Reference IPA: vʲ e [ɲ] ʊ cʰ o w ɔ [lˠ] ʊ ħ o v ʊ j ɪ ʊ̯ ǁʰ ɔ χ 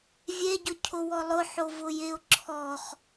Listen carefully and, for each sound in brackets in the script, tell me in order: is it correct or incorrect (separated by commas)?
incorrect, correct